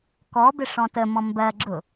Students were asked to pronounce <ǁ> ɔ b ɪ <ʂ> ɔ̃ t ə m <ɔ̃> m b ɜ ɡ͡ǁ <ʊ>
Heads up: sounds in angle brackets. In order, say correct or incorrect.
incorrect: k, correct, correct, correct

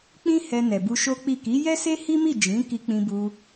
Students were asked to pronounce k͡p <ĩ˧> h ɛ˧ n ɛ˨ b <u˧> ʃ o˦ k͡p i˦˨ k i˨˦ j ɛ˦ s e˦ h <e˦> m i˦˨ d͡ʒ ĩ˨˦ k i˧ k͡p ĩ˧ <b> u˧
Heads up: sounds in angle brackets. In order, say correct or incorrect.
incorrect: ĩ˦, correct, incorrect: i˦, correct

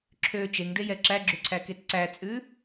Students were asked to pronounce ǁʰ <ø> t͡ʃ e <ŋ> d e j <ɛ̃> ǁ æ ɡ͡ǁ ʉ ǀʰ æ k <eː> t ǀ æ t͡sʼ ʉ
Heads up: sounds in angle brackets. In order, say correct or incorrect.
correct, correct, incorrect: ɛ, incorrect: e

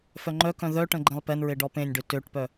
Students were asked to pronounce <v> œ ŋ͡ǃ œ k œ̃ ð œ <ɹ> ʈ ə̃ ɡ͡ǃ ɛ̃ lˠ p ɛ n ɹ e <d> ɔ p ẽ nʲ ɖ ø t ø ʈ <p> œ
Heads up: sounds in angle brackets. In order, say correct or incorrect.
incorrect: f, incorrect: none, incorrect: ɖ, correct

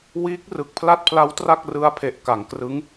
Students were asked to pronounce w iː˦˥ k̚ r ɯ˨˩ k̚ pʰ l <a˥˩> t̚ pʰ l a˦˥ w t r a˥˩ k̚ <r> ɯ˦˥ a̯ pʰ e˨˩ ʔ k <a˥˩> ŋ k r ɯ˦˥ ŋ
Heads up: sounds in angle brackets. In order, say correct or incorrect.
correct, correct, incorrect: a˩˦

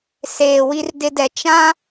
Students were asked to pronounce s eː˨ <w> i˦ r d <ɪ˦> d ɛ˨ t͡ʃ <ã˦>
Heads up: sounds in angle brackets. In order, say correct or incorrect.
correct, correct, correct

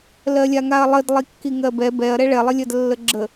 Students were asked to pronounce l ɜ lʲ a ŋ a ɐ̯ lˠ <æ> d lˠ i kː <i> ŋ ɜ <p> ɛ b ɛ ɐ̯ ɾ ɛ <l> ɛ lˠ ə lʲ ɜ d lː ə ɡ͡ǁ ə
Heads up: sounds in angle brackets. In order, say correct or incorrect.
incorrect: ə, correct, incorrect: b, incorrect: ɭ

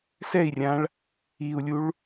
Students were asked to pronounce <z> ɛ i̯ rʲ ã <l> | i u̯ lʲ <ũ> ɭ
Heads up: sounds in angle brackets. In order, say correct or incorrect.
incorrect: s, incorrect: ɭ, incorrect: u

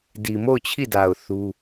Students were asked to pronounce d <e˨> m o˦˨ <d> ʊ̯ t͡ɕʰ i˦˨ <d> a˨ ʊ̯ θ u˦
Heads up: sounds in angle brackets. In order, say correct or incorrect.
incorrect: i˨, incorrect: none, correct

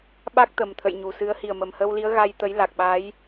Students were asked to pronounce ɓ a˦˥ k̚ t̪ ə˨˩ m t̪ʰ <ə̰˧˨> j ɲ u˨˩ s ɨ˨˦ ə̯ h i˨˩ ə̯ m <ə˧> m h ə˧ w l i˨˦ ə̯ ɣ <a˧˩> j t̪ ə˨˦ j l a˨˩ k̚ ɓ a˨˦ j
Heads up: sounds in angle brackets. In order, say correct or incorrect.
correct, incorrect: ə˨˩, incorrect: a˧

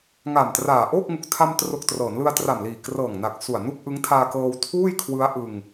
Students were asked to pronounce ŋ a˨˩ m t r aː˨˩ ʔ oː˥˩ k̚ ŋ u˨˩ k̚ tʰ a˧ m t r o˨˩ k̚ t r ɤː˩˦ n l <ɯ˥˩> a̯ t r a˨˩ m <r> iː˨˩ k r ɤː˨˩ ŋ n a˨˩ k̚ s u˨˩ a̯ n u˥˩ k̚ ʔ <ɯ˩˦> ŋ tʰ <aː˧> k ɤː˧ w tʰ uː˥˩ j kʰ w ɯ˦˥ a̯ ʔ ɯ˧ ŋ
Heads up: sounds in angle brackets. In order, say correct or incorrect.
incorrect: ɯ˧, incorrect: l, incorrect: ɯ˦˥, correct

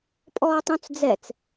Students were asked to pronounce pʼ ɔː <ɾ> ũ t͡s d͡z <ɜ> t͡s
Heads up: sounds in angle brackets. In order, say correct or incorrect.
incorrect: tˤ, incorrect: ɛ

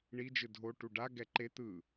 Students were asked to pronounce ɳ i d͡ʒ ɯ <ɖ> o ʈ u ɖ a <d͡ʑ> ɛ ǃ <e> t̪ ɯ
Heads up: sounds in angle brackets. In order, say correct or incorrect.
incorrect: dʱ, incorrect: ɡ, correct

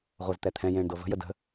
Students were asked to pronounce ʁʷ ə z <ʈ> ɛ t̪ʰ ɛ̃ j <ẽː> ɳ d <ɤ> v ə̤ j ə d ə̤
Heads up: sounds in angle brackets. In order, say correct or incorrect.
incorrect: t̪, correct, correct

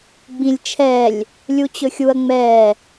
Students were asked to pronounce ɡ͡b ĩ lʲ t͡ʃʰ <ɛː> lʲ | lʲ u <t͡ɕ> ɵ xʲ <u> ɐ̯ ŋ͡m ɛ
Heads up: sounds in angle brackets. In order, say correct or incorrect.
correct, correct, correct

